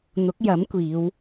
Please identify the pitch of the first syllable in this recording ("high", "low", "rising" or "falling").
rising